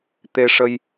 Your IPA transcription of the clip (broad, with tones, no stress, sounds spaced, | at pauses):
t̪ e˧ ʂ ə˧ j